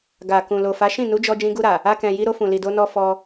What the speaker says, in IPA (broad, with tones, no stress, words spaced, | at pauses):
ɡa˨kũ˨ lo˨fa˨˦ ʃĩ˦˨nu˨˦d͡ʒɔ˧ d͡ʒĩ˧ɡu˧ɾa˨ | a˧kɛ̃˨ji˧ɾo˧ fũ˨li˨do˧nɔ˧ fɔ˧